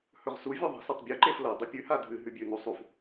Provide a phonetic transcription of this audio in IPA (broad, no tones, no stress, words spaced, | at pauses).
hɵʁsu vʲoðˤe̤s ɐtˤbʲʉ ǃeflɐ dˤɨpʲʉ hadʱɨ ɦʉbʲʉ nusˤuf